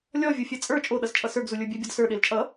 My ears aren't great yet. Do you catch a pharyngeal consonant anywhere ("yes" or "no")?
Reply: no